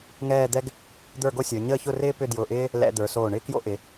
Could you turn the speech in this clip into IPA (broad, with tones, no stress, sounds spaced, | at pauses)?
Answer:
ŋ ɛː˥˧ d̪ ɛ˥ ɡ | d̪ ə˞˥˧ ɡ o˥ sʲ ə˞˩˧ ɲ əː˥˧ ç ʊ˥˧ r ɪː˥ p ʏ˥˧ d j ʊː˧˩ ʔ ɪː˥ | l ɛ̰˧ d̪ ə˞˩˧ s oː˧˩ ɳ ɪː˥ k j o̰˥ ʔ ɪ˩˧